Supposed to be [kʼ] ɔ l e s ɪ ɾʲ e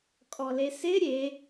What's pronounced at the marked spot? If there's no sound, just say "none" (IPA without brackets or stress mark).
kʼ